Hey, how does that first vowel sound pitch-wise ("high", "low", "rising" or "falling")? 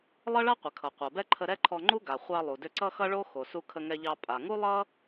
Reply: high